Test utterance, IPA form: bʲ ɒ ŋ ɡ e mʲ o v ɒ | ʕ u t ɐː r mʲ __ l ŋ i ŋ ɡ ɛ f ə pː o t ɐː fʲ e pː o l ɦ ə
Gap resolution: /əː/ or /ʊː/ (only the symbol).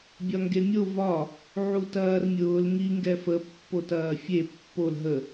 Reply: ʊː